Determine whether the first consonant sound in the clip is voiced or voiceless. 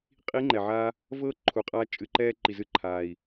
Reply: voiceless